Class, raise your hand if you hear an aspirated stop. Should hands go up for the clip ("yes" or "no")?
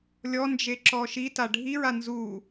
no